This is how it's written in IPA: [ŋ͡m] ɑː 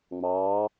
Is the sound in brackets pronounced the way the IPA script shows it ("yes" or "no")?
yes